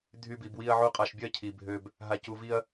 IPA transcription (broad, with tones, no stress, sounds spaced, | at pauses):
dʱ y˦ b i˧ b w i˦ ɐ̯ ʕ u˦ qʼ a˧ ʃ bʲ ɜ˦ cʰ i˧ bʱ ø˦ b | ɦ a˧ c u˧ v i˦ ɐ̯